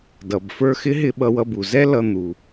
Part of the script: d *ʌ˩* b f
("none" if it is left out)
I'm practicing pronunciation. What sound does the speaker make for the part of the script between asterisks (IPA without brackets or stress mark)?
ʌ˩